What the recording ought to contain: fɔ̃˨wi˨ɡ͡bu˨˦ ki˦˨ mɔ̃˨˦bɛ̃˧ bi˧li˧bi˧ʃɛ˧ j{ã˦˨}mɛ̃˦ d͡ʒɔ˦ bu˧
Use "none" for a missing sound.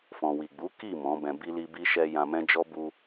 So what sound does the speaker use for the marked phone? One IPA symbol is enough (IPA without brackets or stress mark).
ã˧